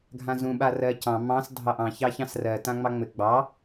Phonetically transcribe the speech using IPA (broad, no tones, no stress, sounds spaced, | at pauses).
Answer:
ɡʱ ã z ũ ɓ a r ɜ c ɑ̃ m ɑ̃ s dʱ ɑ ʔ ɑ̃ ç ɑ ç ɑ̃ s r ɜ t ã ŋ͡m ɑ ŋ͡m ɘ ɡ͡b ɑ